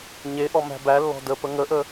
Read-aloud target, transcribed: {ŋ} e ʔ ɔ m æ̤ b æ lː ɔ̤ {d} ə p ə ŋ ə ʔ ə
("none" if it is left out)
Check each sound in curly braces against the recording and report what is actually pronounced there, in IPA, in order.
ɲ, d

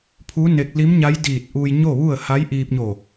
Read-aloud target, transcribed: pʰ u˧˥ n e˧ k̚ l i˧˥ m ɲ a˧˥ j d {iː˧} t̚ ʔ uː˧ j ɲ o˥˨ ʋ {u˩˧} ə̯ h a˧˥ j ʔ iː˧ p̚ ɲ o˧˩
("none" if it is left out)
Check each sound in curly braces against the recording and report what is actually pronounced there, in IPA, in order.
iː˧˩, u˥˨

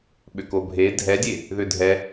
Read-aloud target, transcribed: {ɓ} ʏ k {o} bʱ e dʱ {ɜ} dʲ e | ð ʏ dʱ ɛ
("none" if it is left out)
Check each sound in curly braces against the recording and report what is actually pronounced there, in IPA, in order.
ɓ, o, ɛ

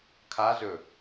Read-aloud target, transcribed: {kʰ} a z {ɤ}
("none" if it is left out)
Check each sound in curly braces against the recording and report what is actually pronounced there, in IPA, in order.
kʰ, ɵ

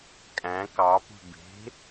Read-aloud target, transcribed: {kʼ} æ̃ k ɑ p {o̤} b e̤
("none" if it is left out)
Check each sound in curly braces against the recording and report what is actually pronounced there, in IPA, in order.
kʼ, ṳ

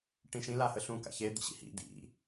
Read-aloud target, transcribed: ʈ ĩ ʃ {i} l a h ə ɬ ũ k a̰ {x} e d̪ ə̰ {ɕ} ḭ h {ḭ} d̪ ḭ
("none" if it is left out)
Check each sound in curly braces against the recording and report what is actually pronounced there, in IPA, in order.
ĩ, ç, ɕ, ḭ

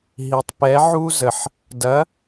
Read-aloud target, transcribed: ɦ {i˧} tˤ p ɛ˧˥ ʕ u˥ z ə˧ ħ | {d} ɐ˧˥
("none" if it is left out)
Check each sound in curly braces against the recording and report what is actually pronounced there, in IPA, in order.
i˧, d

